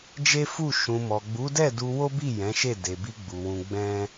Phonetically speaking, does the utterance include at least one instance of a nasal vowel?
yes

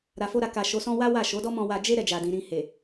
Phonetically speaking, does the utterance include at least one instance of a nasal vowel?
yes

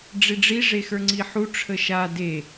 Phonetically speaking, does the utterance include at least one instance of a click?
yes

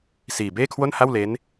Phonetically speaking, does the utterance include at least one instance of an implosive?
no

